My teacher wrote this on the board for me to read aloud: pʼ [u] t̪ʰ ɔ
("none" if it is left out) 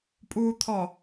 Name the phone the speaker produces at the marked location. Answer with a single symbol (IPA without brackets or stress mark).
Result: uː